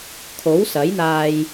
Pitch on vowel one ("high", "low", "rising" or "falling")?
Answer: rising